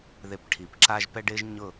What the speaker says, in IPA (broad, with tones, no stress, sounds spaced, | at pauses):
ð e˧ p ʈʰ i˩ p ǁ a˥ ʒ p ɛ˥ ɖ ɪː˥ ʒ ɲ ʊ˥˩